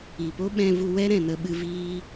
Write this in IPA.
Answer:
i˨ p o˦ ɓ ɛ̃˧ v u˧ w ɛ˦ ɾ ɛ̃˨ n ə˧ ɓ ɨ˧ v iː˧

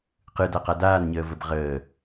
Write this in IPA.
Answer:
q ɯ d a q a d aː n ɲ əː v ə b ʁ əː

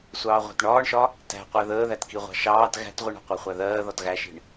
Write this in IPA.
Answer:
sʷ ɑː ʁʷ æ̤ t ɳ ɒː ɳ ʃ ɒ | t æ̤ qʷ æ ð əː ð æ t k i ʁʷ ɑ̤ ʃ ɑː t ɣ æ̤ t ʁʷ i ɳ ɑ̤ qʷ æ χʷ æ ð ɜː ð ɒ t ɣ æ ʃ i̤ ɳ

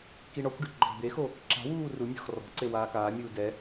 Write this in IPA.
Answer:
k i ɳ ɔ kʷ ɖ i ɡ͡ǃ ɔ̤ d d̪ e x o | ǁ a̤ w uː r u mʲ ɔ̤ x r ɔ̤ ǀ e w aː k aː mʲ uː d ɛ

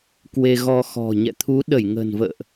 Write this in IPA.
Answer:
k w e˧ ɣ ɔ˧ x ɔ̤˨˩ ɲ ɛ̰˧˨ t̪ʰ u˨˦ ɗ ə˧˩ j ŋ ə̤˨˩ n v ə̰ː˧˨ ʔ

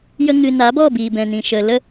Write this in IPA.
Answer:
j ə˧ ŋ ɨ˨ n a˨˦ b ɔ˦˨ b iː˨ b ɛ̃˨ n ĩ˨ ʃ ə˨ l ə˦

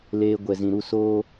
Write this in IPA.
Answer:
l eː˧ ɡʷ ɛ˨ z ĩ˨ ɾ u˦˨ s oː˦

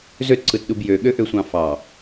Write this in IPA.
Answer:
z ø t ǀ ɯ t ɗ u b j ø ɠ ø ʔ ø sʷ ɑ̃ f ɑ

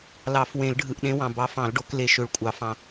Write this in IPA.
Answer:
l ɑ˨˩˦ f w ẽ˨˩˦ l ɖʱ ɯ˨ ʔ ɗ ẽ˨˦ w ɑ̃˨ b ɑ˨˦ f ɑ̃˨˩˦ l ɖ o˨˩˦ k l e˨˩˦ ʃ ø˨˦ ɭ kʷʼ ɑ˨˩˦ f ɑ̃˨

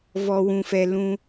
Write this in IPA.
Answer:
v ɔ˧ w ũ˧ f ɛ˧ l ũ˧

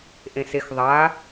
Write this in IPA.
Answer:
ʔ ẽ s e x ðˤ a

